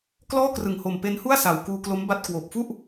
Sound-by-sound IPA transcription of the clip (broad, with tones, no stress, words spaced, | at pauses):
klɔː˥˩krɯ˨˩ŋho˨˩m pe˦˥nhu˥˩a̯ sa˨˩w kuː˧klo˦˥mba˦˥t̚ kwoː˨˩p̚fu˥˩ʔ